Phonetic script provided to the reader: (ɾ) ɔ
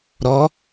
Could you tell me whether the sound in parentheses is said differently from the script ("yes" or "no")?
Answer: no